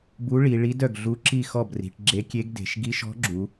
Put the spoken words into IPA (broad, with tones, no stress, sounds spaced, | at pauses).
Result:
b u˧˥ ɭ i˩˧ ɭ i˧˥ d œ˥˩ ɡ ɮ u˧˥ ǁ i˥˩ x ɔ˥˩ b r i̤˩˧ ʈ ɡ͡ǁ e˧˥ kʲ e˧˥ ɡ d e̤˩˧ ʃ ɡ i˧˥ ʃ ɔ̤˧˥ ɡ͡ǁ u˩˧